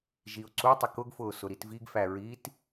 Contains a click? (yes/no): yes